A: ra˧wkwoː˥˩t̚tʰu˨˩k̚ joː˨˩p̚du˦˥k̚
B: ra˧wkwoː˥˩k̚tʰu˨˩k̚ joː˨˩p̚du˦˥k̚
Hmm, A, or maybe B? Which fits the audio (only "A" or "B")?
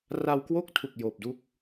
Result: B